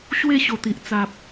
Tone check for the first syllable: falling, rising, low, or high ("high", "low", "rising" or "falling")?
falling